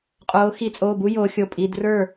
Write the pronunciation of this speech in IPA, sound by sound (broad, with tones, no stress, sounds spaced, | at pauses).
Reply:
qʼ oː˩˧ x i˩˧ t͡sʼ oː˩˧˩ b u˧ j oː˩˧ xʲ o˩˧˩ pʼ i˩˧˩ d r ə˞˥˩